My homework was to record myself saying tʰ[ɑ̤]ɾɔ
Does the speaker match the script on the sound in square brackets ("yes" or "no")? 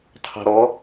yes